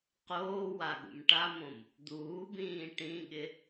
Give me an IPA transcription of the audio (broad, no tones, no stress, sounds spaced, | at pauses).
q oː w a ɠ ṵ m ʈ a m õ m | d̪ uː b ĩː ʈ ĩ ɠ ɪ